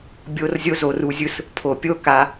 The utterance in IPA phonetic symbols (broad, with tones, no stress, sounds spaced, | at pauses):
bʲ o˧ r zʲ o˧ z o˨ r u˨ zʲ ɯ˧ s | pʰ o˨ pʲ o˦ k a˧